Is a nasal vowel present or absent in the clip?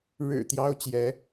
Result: absent